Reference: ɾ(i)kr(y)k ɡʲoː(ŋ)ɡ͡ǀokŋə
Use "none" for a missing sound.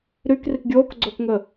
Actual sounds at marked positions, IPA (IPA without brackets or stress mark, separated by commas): y, i, k